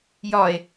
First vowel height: low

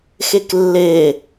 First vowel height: mid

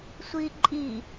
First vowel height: high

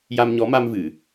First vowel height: low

